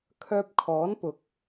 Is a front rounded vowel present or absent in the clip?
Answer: present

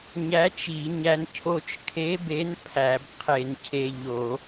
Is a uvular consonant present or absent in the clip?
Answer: present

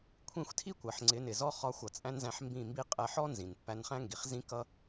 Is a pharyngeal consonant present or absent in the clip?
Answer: present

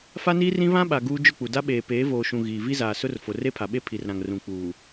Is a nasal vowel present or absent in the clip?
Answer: present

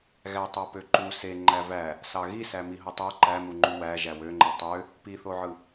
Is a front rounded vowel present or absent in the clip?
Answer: present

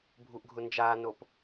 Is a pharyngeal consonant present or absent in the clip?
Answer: absent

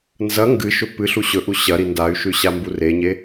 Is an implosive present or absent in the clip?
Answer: absent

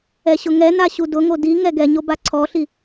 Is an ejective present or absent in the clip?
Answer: absent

